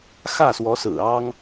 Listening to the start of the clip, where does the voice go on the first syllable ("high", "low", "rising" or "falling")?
falling